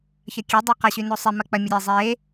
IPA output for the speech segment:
ç ɐ kʲ e dˤ a q a ɕ y n o sˤ e m ɐ k͡p ɐ mʲ ɐ ɾʲ e zˤ e

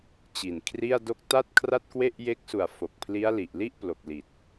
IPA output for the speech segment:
t͡ɕ i˨˩ n kʰ r i˥˩ a̯ d o˦˥ k̚ t a˥˩ t̚ kʰ r a˥˩ t̚ k w e˥˩ ʔ j e˦˥ k̚ s u˨˩ a̯ f o˨˩ k̚ pʰ l i˦˥ a̯ l i˨˩ ʔ l i˥˩ ʔ p l o˨˩ k̚ l i˨˩ t̚

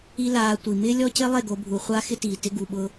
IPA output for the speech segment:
i˦ l aː˧ tʷ i˨ m ɪː˦ lʲ ɔ˦ c ɪ˦ lˠ e˦˨ ɡ o˧ bʱ u˨ χʷ a˦ x ɪ˦ t iː˨ t ɪ˦ ɡ u˧ ɓ ʊ˦

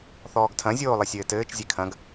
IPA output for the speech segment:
θ ɔː ɡ tʰ ɐ̃ zʲ oː lˠ ɘ sʲ ɘː t ɘː t͡ʃ zʲ e kʰ ɐ̃ ɡ

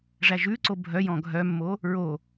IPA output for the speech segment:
ʐ æ ʒ ʉ ǀ o bʱ œ j ɔ̃ ɡʱ œ mː o | ɹ o

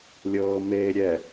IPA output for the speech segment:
lʲ ɤː m eː ɾʲ ɛ

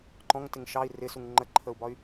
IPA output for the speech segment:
ǃ ɔ̃ ŋ t ɪ ŋ ʃ ɑ i̯ r ɪ s u ŋ ŋ͡ǃ ə ǃʰ ə u̯ b ɒ y̯

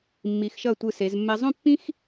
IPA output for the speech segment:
mː i˩˧ x ʃ ʌ˧˩ tʷ ɯ˧˩ s e˩˧ z mː ɛ˧ zˤ ũ˥˧ pː ĩ˥ x

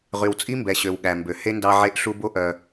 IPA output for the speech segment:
ʁ y˨ w t͡sʼ i˦ m b ɛ˨ ɕ ø˨ w ɠ æ˨ m b ø˨ h e˦ n d ɑ˦ ʕ e˦ ʔ ɬ u˦ b o˦ ʔ œ˦

